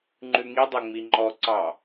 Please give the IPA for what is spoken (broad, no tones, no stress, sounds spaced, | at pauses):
ŋ͡ǃ ʉ ŋ i dˤ o ŋ͡m i ŋ͡ǃ ɔ ǀ ɑ